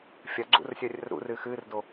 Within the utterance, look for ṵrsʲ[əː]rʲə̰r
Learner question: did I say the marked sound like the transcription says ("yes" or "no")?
yes